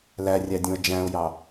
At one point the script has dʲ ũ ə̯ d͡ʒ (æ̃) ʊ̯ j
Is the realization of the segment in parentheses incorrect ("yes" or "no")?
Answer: no